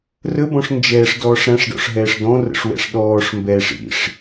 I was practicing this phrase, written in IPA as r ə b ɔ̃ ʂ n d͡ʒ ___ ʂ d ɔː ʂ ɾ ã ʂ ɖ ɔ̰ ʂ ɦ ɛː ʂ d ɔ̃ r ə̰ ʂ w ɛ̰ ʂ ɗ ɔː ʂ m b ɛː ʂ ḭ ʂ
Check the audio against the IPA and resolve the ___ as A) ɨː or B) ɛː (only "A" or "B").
B